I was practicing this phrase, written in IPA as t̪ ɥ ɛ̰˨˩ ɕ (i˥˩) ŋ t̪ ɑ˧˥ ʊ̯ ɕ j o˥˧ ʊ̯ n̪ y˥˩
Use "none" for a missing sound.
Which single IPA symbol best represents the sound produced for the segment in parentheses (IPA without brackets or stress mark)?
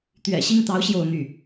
i˥˩